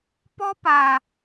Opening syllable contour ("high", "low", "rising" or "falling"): high